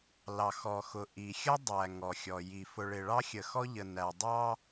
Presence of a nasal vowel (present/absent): absent